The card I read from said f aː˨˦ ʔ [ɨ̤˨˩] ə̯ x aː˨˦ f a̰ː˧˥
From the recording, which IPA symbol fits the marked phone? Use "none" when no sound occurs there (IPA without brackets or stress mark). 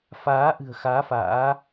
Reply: ɨ̤˨˩